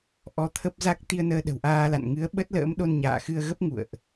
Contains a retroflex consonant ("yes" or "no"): no